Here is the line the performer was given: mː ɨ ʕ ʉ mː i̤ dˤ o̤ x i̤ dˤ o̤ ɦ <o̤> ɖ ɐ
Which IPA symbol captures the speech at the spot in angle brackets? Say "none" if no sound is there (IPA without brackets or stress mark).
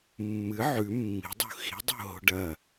o̤